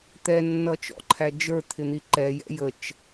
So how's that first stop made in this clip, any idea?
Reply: plain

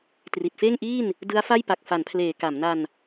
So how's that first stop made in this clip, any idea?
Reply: plain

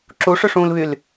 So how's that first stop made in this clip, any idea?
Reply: click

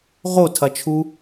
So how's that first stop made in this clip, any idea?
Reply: aspirated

